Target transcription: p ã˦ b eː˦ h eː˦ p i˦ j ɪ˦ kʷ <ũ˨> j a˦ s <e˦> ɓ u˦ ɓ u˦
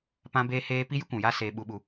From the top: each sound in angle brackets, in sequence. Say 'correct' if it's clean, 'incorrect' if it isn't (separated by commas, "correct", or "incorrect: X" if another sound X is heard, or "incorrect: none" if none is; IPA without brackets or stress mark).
correct, incorrect: eː˦